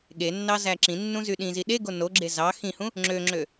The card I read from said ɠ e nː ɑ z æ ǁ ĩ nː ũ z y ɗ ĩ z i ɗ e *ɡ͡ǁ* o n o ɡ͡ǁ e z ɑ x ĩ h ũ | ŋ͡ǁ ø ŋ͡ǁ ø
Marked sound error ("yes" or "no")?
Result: yes